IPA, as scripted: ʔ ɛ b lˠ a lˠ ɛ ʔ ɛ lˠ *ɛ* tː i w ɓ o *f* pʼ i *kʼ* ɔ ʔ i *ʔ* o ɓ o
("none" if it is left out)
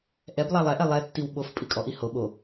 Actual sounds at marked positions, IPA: ɛ, f, kʼ, h

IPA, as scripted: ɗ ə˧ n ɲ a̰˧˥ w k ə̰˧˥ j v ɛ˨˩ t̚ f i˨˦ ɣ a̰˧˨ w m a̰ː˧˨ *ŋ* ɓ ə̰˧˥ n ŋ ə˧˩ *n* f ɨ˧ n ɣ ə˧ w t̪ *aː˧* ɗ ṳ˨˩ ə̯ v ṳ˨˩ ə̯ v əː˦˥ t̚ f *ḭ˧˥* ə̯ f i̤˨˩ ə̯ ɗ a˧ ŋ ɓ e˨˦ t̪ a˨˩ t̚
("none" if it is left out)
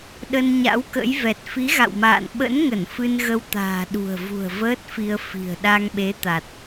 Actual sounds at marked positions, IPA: n, n, a̤ː˨˩, i˧

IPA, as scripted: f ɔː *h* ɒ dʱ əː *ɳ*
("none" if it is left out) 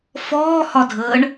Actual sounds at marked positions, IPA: h, ɳ

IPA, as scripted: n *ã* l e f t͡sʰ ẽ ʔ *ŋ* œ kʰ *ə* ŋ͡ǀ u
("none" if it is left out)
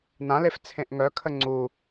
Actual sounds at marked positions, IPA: ã, ŋ, ə

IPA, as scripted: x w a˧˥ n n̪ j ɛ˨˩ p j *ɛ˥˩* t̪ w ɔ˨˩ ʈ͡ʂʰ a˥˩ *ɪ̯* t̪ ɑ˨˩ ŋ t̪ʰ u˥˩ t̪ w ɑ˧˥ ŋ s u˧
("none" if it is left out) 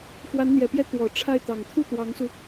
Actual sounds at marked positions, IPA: ɛ˥˩, ɪ̯

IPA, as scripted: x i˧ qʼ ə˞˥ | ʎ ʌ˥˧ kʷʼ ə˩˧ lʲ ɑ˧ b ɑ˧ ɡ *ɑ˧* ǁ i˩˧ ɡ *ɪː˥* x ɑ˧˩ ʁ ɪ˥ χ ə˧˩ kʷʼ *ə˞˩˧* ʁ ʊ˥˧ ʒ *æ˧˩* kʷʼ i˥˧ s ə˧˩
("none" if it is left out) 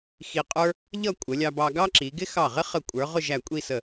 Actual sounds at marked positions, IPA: ɑ˥, ɪ˥, ə˞˩˧, æ˧˩

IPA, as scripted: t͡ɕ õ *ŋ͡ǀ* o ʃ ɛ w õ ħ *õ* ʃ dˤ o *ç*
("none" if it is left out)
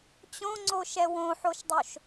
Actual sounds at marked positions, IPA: ŋ͡ǀ, o, ʃ

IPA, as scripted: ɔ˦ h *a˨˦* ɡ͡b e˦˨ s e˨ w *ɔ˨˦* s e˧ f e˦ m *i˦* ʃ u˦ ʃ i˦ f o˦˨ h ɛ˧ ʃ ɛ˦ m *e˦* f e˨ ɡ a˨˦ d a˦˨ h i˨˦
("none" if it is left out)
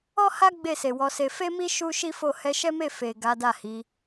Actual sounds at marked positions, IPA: a˦, ɔ˨˦, i˦, e˦˨

